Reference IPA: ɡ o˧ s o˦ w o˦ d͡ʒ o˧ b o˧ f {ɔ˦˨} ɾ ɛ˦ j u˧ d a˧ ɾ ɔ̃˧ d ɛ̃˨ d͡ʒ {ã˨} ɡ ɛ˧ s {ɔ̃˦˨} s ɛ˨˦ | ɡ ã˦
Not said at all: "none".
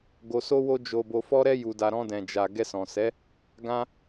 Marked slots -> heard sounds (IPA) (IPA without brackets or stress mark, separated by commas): ɔ˦, a˨, ɔ̃˨